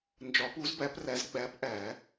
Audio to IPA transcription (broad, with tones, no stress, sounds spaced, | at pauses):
n d͡ʒ ɒ˨˦ p u˨˦ z b æ˨˦ p r æ˨˦ z ɡ͡b æ˨˦ p ʔ æ˨˩˦